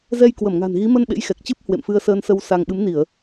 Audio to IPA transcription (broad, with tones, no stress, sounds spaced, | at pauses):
z ɛ˧ j k w ə˧˩ m ŋ a̤˨˩ n ɣ i˨˦ m ə˧ n ɓ ḛ˧˥ j x ɛ˨˩ k̚ t͡ɕ ɨ˦˥ p̚ h w ḛ˧˨ m f ɨ˧ ə̯ s əː˧ n s ə˧ w s a˧ ŋ ɓ ɨ˨˦ m n i˧˩˨ ə̯